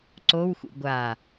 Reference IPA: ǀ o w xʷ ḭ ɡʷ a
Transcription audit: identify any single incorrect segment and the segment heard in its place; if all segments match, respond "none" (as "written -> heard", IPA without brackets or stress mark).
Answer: none